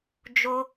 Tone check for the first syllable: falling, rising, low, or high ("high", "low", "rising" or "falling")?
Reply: high